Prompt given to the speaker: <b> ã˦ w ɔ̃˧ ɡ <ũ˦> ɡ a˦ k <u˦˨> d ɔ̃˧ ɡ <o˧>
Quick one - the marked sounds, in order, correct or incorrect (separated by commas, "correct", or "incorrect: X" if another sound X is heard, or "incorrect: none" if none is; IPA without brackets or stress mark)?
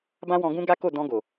correct, correct, incorrect: o˦˨, incorrect: o˨